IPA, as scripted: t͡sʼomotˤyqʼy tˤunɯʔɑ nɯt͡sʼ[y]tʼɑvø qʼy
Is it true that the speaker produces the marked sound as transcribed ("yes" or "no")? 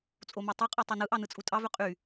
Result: no